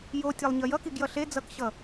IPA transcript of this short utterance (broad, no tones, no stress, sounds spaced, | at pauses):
j o tʲ ɛ lˠ ɲ ʌ j ʌ k i ɡ j ʌ ɬ e d͡z ʌ k ɕ ʌ